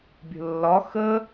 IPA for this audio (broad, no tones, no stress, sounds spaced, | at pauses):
bʲ ə̤ lː ɒ x ə